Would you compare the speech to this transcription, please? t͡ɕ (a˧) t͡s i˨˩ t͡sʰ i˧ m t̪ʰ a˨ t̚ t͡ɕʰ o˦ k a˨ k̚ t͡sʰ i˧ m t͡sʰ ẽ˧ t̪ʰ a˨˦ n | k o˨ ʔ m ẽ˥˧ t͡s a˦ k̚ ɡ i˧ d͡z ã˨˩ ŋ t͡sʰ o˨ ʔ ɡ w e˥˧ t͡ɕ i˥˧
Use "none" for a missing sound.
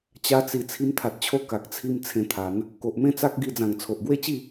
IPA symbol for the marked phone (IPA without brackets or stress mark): a˧